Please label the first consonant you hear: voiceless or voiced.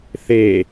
voiceless